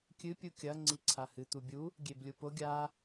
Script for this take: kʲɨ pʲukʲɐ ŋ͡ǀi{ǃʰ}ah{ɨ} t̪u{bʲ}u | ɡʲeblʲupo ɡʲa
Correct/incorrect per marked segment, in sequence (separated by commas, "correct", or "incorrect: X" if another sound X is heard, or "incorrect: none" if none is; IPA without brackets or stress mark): incorrect: ǀʰ, correct, correct